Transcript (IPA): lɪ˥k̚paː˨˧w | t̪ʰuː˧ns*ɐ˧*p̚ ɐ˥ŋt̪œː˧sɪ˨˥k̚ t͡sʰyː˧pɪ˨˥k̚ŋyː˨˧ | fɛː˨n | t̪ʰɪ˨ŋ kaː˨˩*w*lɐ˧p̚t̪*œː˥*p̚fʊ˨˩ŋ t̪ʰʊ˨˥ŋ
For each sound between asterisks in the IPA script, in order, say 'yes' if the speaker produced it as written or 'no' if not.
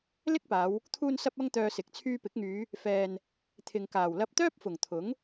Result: yes, yes, yes

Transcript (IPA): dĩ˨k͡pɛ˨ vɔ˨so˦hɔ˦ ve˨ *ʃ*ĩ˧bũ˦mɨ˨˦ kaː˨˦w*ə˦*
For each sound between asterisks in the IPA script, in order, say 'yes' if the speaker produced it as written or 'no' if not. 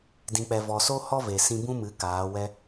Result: no, no

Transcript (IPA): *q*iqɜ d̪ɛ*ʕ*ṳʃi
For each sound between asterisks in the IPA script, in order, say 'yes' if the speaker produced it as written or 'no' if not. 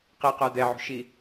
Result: yes, yes

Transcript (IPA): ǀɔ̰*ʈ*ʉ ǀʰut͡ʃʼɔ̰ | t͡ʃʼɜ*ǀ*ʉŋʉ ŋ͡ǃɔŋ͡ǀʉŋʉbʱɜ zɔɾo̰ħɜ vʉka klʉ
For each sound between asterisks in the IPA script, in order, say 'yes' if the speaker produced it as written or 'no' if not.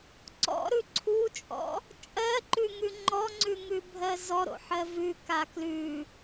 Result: no, no

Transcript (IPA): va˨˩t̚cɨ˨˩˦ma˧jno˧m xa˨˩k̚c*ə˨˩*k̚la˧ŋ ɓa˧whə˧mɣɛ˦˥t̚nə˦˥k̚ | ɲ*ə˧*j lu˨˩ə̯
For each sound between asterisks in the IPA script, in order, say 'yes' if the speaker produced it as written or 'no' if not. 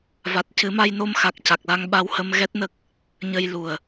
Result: no, yes

